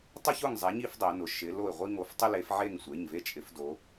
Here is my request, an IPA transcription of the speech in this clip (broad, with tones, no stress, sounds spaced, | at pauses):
tˤ ʊ˦ ç ʊ˦˨ ŋ zˤ ɛ˨˦ ɲ i˦ f dˤ ɛ˨˦ n ʊ˩˧˩ ʃ ɪ˨˦ l o˦˨ ɪ̯ ʁʷ i˦ ŋ o˨˦ f tˤ ɪ˦ l e˨˦ f ʕ e˦˨ ŋ sʷ e˩˧˩ ɲ v e˦ t͡ʃʼ ɪ˨˦ f d o˨˦